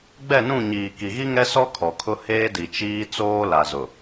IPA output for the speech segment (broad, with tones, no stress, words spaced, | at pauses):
ɡ͡bɛ˦˨nũ˦˨ɲiː˨ ki˨ɣi˦ŋɛ˦ sɔ˦ kʰɔ˨kʰʊ˦ heː˦di˨ t͡ʃiː˦ t͡soː˦la˨zʊ˨